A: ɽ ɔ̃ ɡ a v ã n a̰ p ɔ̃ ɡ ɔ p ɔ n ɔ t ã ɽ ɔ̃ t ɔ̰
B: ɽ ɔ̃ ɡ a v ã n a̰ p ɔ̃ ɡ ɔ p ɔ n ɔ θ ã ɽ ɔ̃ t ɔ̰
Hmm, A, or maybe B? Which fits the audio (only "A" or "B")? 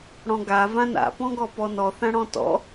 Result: B